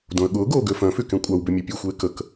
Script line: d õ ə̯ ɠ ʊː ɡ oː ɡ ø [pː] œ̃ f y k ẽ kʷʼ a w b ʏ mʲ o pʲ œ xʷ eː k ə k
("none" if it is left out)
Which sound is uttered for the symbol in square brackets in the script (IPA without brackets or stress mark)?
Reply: f